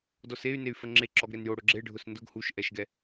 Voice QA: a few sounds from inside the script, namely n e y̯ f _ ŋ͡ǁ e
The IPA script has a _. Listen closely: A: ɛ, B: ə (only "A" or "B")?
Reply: B